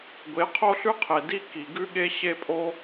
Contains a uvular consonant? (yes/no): yes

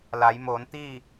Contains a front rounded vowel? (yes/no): no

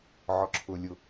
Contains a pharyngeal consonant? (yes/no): yes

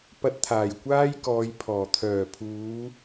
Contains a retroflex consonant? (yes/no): no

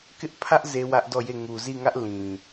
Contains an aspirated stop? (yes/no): yes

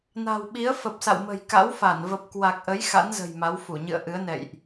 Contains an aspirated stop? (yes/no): no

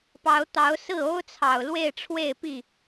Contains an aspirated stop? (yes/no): yes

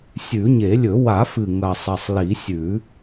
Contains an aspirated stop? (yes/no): no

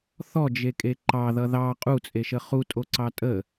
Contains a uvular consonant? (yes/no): yes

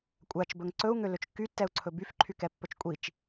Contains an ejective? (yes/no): yes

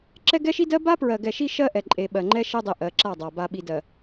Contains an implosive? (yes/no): yes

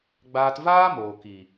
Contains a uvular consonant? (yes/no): no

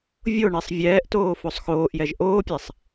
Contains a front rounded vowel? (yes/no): no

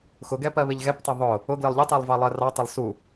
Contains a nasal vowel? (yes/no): no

